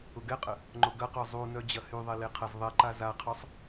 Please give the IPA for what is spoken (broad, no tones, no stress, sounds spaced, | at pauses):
ʊ ɡ ɛ qʼ ə | ŋ͡ǃ ʊ ɡ ɐ q œ zˤ u n œ d͡ʑ ɐ h y ðˤ e l e qʰ ɐ z ðˤ ɛ ǃ a z a qʰ œ sˤ